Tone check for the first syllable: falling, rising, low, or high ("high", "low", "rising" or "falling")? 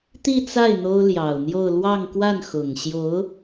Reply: falling